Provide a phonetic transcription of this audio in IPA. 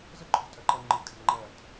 z ə ǃʰ o̤ tʼ ɜ ǃ ɜ ŋ͡ǃ ɨ kʼ a̤ ŋ͡ǃ ɜ t

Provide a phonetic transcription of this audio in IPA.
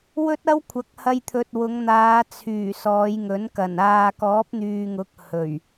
w ɵ˥ t̚ ɐ˥ w kʷʰ ɐ˨˥ k̚ h ɐ˧ j t̪ʰ ɵ˨ t̚ w ʊ˨˧ ŋ n̪ aː˨˧ t͡sʰ yː˨˩ s ɔː˨˧ j ŋ ɵ˨˥ n k ɐ˨˩ n aː˨ k ɔː˨˥ p̚ n̪ yː˨ ŋ ʊ˨˥ k̚ h ɵ˨˩ ɥ

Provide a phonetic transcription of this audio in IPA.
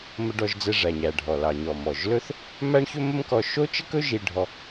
m ə˧ ɖ ɔ˧ ʒ d͡z ɛ˧ ʐ æ˩ ɲ æ˩ ɖʱ ɔ˩ l ɑ˩ ɲ ɔ˩ m ɔ˩ ʒ l ɵ˥ θ | m æ˥ ɳ ç ɵ˥ m ə˥ m k ɔ˧ ʃ o˥ t͡ʃ ə˥ k ɵ˥ ʒ i˧ ɖʱ ɔ˧

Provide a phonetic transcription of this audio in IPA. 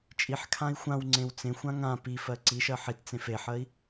t͡ʃʼ i ħ kʰ ã i̯ xʷ ã w ŋ͡ǀ ẽ w t͡s ẽ xʷ ã ŋ ã p i f ɜ ǀ i ʃ ɜ ħ i t t͡s ẽ f e ħ ɜ i̯

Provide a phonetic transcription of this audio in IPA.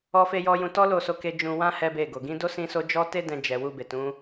ɔ˦ f e˦ j ɔ˦ j ũ˧ t ɔ˦ l o˦˨ s o˧ k e˦ d͡ʒ ũ˧ w ã˦ h ɛ˦ b e˦˨ ɡ o˨ ɡ ĩ˨˦ d o˦ s ĩ˦ s o˦ d͡ʒ ɔ˦ t e˦ d ɛ̃˧ d͡ʒ ɛ˨ w u˧ b e˨ t ũ˨˦

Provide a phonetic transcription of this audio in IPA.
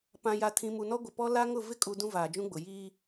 p ã˨ j a˨ tʰ ĩ˨ m u˨ n ɔ˦ ɡʷ ɪ˨ p ɔ˦ l a˦ ŋ ʊ˦˨ v ɪ˦ kʼ u˨ d ũ˦ v aː˨ d͡ʒ ũ˦ ɡ͡b ʊ˨ j iː˦

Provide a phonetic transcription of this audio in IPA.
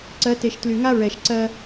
ǀ ɜ˨˦ t e˨ ʃ t l y˨ ŋ a˦ ɹ ɛ˨ ʃ ǀ ɜ˦

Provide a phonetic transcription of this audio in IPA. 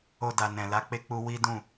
o˧ d a˨ n ɛ̃˨ l a˨˦ k͡p e˦ k͡p u˦ w i˦ d ũ˦˨

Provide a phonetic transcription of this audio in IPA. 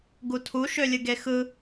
ɡ u tʰ u ʃ ø lʲ ɯ ɡ e x ɯ

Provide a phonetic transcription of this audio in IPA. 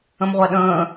ə̃ m ʁʷ æ ɗ ə̃ː

